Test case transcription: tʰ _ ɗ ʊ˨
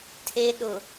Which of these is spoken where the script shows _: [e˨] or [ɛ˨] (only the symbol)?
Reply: e˨